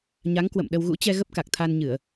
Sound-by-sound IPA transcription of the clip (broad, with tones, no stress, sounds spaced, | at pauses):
ɲ a˨˦ ŋ k w ə̰˧˨ m ɗ ə˧ w ɣ ṵ˧˥ t͡ɕ ɛ˧ ɣ ə˦˥ p̚ k a˨˩ k̚ t̪ʰ a˧ n ɲ ɨ˧˩˨ ə̯